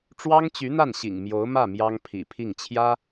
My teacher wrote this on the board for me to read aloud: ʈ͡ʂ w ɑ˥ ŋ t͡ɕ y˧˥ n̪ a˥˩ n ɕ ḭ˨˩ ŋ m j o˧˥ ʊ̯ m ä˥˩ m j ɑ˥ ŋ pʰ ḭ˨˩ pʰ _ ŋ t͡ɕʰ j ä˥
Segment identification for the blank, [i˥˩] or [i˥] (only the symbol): i˥˩